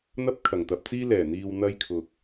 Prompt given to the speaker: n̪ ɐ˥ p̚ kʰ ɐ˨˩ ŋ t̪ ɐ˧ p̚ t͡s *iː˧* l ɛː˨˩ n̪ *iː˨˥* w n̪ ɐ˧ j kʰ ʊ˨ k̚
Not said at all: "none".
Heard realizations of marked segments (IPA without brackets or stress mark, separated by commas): iː˥, iː˨